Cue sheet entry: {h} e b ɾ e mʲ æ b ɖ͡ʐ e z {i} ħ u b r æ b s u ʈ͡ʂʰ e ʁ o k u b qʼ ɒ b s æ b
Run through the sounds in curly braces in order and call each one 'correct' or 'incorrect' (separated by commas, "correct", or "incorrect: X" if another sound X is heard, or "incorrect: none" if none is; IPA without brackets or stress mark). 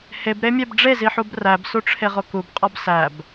correct, correct